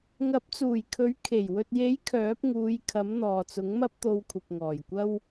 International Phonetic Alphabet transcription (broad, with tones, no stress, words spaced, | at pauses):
ŋɐ˨˥p̚t͡suː˨˩jkʰɵ˨˥ɥ kʰe˨˩j wɵ˨t̚je˨˥j kʰœː˨˥p̚ŋuː˨˧j kʰɐ˨˥m n̪ɔː˨t͡sʊ˨˥ŋmɐ˥p̚ t̪o˧wkʷʰɐ˨p̚ ŋɔː˨˩jkʷɐ˥w